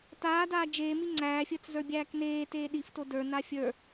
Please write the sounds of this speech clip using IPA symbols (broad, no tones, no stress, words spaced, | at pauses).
taːdaː d͡ʒeːmi ŋ͡ǀæːfʲə˞t͡s zə˞bʲæːkneː teːɗifto də˞ nafʲə˞